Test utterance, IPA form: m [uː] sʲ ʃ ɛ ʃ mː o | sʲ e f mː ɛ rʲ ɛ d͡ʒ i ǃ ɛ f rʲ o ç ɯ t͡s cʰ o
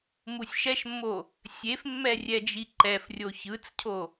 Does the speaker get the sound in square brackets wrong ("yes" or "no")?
yes